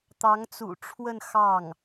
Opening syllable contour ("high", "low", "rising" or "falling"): rising